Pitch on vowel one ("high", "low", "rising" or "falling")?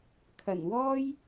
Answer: low